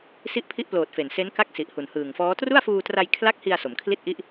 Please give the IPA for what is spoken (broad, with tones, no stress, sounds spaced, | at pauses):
s i˦˥ ʔ pʰ i˦˥ ʔ p l oː˨˩ t̚ f e˨˩ n s e˦˥ n k a˥˩ k̚ s i˨˩ ʔ h u˨˩ n h ɯː˨˩ ŋ f ɔː˦˥ t r u˥˩ a̯ f uː˧ t r a˧ j kʰ l a˦˥ k̚ h i˧ a̯ s o˩˦ m kʰ l i˥˩ t̚ ʔ i˥˩ ʔ